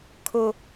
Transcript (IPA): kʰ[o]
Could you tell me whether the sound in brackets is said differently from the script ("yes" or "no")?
no